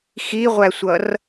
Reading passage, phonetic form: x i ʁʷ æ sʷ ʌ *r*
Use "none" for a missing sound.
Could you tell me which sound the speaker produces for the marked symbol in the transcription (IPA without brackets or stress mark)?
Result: r